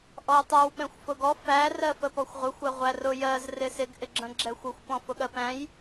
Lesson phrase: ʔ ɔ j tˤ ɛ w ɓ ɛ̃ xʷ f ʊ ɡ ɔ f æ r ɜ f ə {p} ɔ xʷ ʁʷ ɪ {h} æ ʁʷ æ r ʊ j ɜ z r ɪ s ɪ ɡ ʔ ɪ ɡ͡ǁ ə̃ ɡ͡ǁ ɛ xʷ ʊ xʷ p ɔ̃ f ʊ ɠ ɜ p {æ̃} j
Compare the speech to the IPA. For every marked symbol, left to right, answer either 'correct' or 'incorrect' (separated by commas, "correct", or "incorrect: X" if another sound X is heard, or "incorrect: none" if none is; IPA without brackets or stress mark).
correct, incorrect: xʷ, correct